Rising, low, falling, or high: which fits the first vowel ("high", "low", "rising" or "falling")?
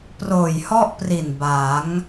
low